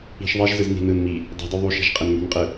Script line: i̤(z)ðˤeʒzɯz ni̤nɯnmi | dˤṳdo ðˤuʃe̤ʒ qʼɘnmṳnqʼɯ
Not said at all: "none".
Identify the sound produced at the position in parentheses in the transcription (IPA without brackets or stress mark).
ʃ